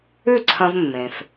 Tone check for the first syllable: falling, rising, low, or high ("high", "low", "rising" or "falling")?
falling